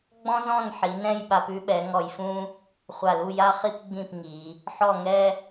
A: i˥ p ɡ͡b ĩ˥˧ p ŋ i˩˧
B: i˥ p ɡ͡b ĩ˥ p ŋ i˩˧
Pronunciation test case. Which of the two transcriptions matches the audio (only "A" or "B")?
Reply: A